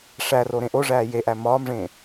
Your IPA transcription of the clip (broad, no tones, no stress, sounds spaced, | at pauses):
ʂ æ r o ɾ ẽ ʔ o ʐ æː j e ʔ æ m ɒː m ʐ ẽː